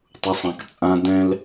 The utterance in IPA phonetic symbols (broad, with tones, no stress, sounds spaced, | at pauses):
tˤ u˨ sˤ ã˨ k t͡sʼ ã˧ d ɛ̃˦ l